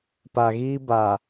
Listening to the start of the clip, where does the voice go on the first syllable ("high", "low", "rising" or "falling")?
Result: low